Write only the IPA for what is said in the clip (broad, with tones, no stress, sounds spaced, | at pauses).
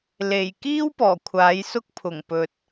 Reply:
l e˨˩ j k iː˥ w p ɔː˨˩ kʷʰ aː˨˥ j s ʊ˥ k̚ pʰ ʊ˨˩ ŋ p ɵ˨ t̚